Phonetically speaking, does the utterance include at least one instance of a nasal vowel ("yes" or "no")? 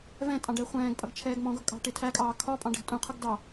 yes